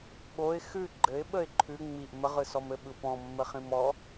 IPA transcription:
ɓ o ɪ̯ x ʉ ɡ͡ǃ ɘ ɪ̯ ɓ ə ɪ̯ ǃʰ ʉ ŋ͡m i ʔ m ə ʁ ɯ s ɔ m ɘ ɓ ɯ p ɔ̃ mː ɘ χ ĩ m ɔ

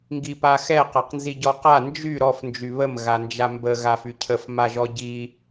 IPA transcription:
ŋ ɡ i p a x ɛ q a q n z i ɟ ɔ q a n d͡ʒ y ɾ ɔ f n d͡ʒ y β ə m ɣ a n d͡ʒ a m b ə ɣ a f y cʰ ə f m a ʒ ɔ ɟ i

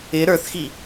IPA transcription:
ɪ ɾ ə˞ θ x i

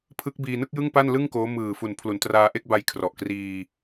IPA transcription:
pʰ ɯ˦˥ k̚ b iː˧ n ɯ˥˩ k̚ j ɯ˥˩ ŋ p a˥˩ n l ɯ˥˩ ŋ k oː˦˥ m ɯː˨˩ f u˨˩ n pʰ l u˩˦ n t r aː˧ ʔ e˥˩ k̚ b a˧ j kʰ r ɔ˨˩ ʔ k r iː˧

